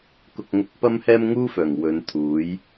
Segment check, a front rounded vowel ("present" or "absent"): present